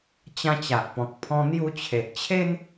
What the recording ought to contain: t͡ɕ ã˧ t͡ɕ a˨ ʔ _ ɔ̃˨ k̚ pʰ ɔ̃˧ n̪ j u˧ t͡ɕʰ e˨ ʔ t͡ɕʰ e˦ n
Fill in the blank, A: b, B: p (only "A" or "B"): B